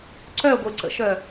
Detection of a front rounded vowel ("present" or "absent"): present